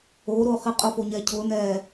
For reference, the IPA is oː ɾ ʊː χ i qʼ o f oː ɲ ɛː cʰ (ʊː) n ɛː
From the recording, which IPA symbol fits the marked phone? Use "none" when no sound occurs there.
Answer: ʊː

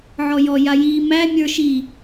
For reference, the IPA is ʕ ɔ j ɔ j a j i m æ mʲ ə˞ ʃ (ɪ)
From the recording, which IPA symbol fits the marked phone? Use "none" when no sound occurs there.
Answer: i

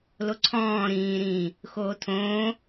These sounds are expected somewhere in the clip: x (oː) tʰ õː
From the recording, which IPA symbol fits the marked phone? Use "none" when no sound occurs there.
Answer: oː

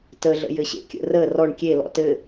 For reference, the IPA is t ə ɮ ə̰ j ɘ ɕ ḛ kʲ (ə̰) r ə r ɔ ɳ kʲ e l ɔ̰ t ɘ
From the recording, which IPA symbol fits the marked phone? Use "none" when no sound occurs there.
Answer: ə̰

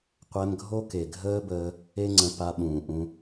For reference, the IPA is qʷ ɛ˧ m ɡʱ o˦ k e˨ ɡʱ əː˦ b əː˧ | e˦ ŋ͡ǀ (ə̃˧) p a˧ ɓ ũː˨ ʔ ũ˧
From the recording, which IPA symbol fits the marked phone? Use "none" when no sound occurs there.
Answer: ə̃˧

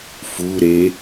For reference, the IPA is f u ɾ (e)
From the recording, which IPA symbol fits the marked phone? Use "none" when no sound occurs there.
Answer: e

